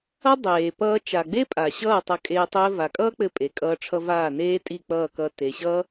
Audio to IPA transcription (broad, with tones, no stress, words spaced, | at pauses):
ʌ˦dˤeː˨ pʌː˧ t͡ʃa˨ɡ͡be˦ pʼa˨ɕʌː˦˨ tˤʌ˧kʼeː˧ tˤɘː˧va˨kʼʌː˦k͡pɘ˧ pʼe˨kʼʌː˧ʈ͡ʂʰʌ˧ vaː˦˨neː˦tʼi˦˨k͡pʌː˦˨ kʌ˧ te˨ɕʌ˦